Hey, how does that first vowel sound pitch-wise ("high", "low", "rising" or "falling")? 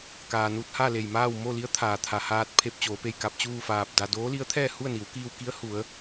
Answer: low